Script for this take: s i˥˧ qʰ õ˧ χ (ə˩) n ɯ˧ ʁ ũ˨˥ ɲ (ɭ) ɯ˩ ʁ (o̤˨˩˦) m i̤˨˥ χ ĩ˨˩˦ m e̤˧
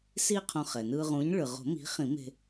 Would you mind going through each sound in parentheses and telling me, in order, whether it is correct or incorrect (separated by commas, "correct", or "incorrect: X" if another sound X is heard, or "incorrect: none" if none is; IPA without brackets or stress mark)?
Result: incorrect: ɛ˩, correct, correct